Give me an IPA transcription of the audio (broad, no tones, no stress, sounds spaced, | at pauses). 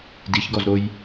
d i ç ɡ ɔ z ɾ o j